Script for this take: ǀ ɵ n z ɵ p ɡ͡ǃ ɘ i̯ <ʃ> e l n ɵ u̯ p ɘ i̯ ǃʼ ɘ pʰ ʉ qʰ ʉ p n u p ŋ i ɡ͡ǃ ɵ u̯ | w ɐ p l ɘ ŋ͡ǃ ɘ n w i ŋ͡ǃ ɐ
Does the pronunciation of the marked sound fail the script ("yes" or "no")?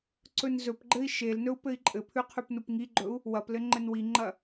no